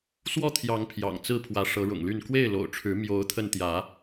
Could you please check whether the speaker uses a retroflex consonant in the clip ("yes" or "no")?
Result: yes